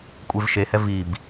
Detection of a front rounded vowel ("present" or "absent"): absent